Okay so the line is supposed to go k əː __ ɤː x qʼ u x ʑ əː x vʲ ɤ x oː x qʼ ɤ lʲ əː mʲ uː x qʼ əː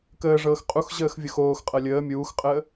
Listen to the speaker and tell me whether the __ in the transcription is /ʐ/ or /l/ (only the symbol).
ʐ